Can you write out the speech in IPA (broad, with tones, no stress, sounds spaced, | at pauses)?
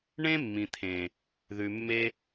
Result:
ɳ ẽ˦ mː ĩ˨ t̪ʰ ẽ˨ | ð ʉ˨ mː e˧